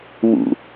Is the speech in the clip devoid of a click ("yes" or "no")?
yes